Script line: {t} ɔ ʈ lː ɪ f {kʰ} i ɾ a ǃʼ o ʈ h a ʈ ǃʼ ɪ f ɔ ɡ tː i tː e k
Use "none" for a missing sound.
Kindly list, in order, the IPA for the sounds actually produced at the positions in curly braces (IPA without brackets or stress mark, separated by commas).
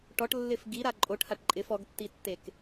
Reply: ʈ, ɡ